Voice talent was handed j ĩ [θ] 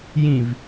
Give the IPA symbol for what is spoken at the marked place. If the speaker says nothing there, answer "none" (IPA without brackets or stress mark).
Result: v